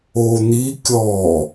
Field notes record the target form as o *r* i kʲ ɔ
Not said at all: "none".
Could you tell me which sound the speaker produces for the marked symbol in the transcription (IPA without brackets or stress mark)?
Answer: n̪